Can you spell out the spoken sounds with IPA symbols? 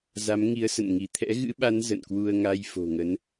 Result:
za˨˦mŋi˨˦ə̯sə̰˧˨n ŋi˧˩t̪ʰɛ̰˧˥ɣɨ̰˧˥ɓa˨˦n zə̰˧˨nkwu˧ə̯ ŋa˧jfo̤˨˩ ŋə˨˦n

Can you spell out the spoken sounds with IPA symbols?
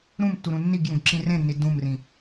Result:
ɾũmtːuɾũ nːiɡjũɡǁĩ rẽnːi dũmrĩ

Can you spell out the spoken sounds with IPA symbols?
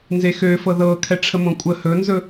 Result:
nzexøfɤ ðɤ kʰɛʈ͡ʂʰəmõkʷʼə hɵnzɵ

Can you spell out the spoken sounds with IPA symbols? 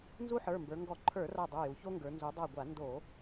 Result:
nzu˦ħə˞˩˧˩mbə˞˩˧ ŋɡɔ˧˩˧ǃʰə˞˧˩˧ra˧˩ dˤu˩˧˩ju˩˧ço˦ŋɡə˞˩˧ nzu˩˧dˤa˧˩ɡʷa˧˩˧ ndo˧˩˧

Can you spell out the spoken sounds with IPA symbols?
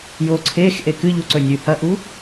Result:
joǀʰexʔe kɨʎuǀɵ nʲʉhɐʔu

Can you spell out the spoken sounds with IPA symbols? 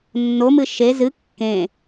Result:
nːomɨ ʃe zɨ kːẽ

